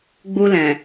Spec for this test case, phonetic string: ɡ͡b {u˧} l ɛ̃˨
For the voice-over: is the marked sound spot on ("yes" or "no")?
yes